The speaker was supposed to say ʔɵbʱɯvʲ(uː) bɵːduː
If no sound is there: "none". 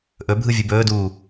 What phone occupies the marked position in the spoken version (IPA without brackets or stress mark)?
u